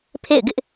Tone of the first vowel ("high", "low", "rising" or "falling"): falling